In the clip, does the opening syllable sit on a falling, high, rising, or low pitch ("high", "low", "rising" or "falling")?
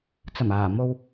low